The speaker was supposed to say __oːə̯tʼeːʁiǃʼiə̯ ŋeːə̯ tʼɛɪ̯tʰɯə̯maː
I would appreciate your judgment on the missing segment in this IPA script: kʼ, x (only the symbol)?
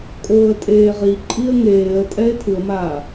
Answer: kʼ